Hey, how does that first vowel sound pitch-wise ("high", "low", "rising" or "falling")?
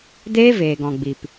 high